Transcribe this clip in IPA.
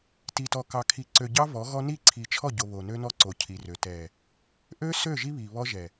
t i˨ t ɔ˨ k ɑ˨ kʰ i˨ ǀ ø˨ ɟ ɑ˦ v ɔ˨˦ ɣ ɔ˦ n i˦˨ ǀʰ i˨ t͡ʃʰ ɔ˦˨ ɟ o˨ β o˨ n ø˦ n ɔ˦ ǀ o˨ cʰ i˨ r ø˨ t ɛ˨ | ʔ ø˦ s ø˦˨ ʒ i˦ β i˨ β ɔ˦ ʒ ɛ˨

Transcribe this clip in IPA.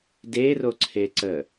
d e r o ǀʰ e ǀ ə

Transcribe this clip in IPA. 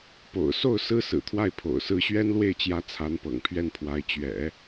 p o̰˨˩ ʊ̯ s o˥˩ ʊ̯ s ɹ̩˥ s ɹ̩˨˩ t̪ʰ w a˥˩ ɪ̯ pʰ o̰˨˩ ʊ̯ s ɹ̩˧˥ ɕ ɥ ɛ˥ n l w e˥˩ ɪ̯ t͡ɕ j ä˧˥ t͡sʰ a˧˥ n p ɤ̰˨˩ ŋ pʰ ɥ ɛ˥˩ n pʰ w a˧˥ ɪ̯ t͡ɕ ɥ ɛ̰˨˩˦

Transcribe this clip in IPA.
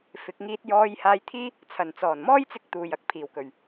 f ɪ˨˥ k̚ ŋ iː˧ t̚ j ɔː˧ j h aː˧ j t̪ʰ iː˥ | t͡sʰ ɐ˨˩ n t͡s ɔː˨˩ n m ɔː˥ j t͡s ɪ˥ k̚ t̪ uː˨ j ɐ˨ k̚ pʰ iː˨˩ w k ɵ˨˩ ɥ

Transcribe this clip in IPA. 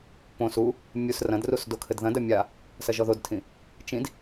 p õ s u | mʲ u s r ɐ̃ d r u s d o kʰ ɘ d ð ɐ̃ d ɐ mʲ a | s ɐ ʒ ɔ ð o d tʰ ĩ | t͡ʃ ĩ d

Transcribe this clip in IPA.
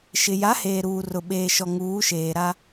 ʃ ɪ˨ j a˨˦ h eː˨ ɾ uː˨ r ʊ˨ ɓ eː˨ ʃ ɔ˨ ŋ uː˨˦ ʃ eː˨ ɾ a˦

